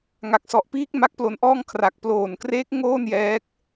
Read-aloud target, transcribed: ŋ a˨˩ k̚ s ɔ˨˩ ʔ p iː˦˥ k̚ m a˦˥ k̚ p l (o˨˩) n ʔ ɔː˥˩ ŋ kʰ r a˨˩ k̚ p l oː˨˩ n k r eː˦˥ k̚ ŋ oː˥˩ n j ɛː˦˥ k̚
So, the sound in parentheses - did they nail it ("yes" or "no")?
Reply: no